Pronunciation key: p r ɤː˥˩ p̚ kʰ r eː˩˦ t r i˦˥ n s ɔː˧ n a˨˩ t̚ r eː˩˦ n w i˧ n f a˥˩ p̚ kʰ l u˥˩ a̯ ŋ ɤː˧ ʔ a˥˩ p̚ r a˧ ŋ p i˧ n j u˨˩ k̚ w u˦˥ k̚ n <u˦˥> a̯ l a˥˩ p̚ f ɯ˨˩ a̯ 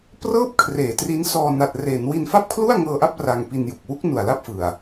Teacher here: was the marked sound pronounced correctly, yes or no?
no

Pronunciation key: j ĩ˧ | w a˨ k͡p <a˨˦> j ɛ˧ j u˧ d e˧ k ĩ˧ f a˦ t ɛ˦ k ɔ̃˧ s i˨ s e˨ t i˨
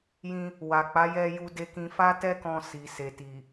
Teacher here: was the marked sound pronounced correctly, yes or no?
yes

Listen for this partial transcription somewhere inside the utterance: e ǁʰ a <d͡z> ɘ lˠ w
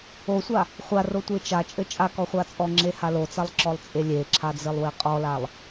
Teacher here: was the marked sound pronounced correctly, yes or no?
yes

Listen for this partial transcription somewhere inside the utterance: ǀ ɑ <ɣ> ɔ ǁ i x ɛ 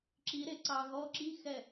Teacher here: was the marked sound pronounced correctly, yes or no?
yes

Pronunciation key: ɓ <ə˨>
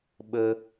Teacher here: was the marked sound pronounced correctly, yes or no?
no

